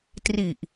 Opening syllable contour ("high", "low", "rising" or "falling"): low